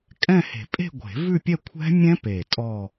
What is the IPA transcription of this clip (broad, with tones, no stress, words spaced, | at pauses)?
kʼɛ̃˥˧he̤˨˩˦ pʼe̤˥˧ɡʷe̤˨˩˦vʉ˥˧pʲɛ˥˧ kʷʰɛ̤˦˥mʲɛ̃˦˥pe˨˩ tʼɔ˥˧